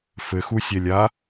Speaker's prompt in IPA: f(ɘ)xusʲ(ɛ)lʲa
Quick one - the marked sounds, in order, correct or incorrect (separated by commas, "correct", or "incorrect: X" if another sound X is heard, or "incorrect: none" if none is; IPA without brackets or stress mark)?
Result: correct, correct